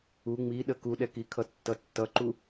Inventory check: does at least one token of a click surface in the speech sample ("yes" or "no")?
yes